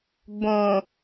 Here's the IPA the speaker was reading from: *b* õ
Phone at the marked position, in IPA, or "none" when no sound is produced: b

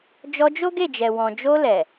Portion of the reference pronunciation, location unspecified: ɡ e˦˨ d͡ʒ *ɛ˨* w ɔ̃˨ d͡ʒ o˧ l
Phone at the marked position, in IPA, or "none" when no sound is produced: ɛ˨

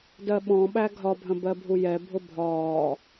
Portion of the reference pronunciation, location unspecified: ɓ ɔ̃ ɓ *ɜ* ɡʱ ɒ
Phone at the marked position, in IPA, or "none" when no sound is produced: æ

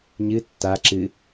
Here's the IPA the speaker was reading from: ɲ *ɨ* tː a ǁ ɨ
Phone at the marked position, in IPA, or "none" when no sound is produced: ɨ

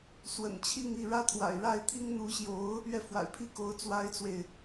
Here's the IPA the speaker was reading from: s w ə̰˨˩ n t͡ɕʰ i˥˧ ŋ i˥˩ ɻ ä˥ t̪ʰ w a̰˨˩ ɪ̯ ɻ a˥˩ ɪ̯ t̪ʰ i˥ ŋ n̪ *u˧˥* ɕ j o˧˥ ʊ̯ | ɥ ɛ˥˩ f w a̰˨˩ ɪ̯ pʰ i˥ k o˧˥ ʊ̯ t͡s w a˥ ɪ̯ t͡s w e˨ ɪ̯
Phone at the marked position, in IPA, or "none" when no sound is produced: u˧˥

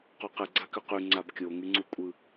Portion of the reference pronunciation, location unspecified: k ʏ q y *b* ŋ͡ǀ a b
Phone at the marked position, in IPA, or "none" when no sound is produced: none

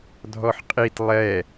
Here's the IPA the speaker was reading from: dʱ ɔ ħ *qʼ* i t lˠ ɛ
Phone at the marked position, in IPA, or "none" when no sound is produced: qʼ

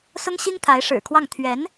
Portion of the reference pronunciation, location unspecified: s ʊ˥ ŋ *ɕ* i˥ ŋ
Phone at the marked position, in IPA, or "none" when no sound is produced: ɕ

